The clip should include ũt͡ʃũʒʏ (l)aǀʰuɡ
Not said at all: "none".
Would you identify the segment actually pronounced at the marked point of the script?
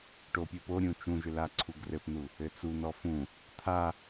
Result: l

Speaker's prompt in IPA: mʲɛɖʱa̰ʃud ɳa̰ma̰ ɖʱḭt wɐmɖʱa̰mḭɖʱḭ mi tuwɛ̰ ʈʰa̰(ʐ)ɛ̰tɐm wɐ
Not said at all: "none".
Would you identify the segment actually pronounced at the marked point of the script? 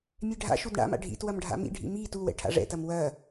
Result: ʐ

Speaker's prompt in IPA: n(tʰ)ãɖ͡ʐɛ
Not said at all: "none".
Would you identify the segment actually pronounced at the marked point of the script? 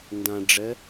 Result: d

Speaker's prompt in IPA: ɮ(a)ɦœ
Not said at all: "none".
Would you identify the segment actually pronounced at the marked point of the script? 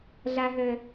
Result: a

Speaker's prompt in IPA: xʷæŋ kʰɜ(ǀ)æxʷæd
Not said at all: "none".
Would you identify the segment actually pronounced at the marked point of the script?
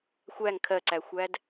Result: ǀ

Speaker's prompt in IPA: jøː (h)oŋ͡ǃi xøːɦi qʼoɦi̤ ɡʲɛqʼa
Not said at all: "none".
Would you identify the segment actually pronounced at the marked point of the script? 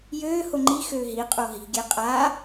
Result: h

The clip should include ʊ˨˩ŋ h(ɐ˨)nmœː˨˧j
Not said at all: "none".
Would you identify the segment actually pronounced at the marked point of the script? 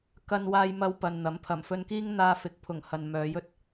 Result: ɐ˨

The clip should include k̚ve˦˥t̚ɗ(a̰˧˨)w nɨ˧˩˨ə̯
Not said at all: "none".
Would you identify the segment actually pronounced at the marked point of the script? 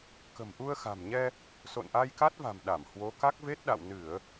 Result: a̰˧˨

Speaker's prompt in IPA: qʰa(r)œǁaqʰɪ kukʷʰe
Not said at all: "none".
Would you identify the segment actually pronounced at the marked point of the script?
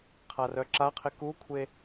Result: r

